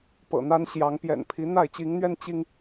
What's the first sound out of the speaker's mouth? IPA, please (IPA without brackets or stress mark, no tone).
p